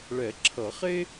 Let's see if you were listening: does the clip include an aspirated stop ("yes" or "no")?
yes